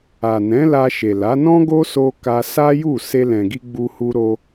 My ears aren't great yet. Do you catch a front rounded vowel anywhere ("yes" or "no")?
no